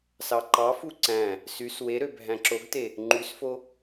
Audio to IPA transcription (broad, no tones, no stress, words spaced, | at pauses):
sɑǃɑfu ǀæ̃ | sys weɾø bʱæ̃ǁoɡte | ŋ͡ǃysfo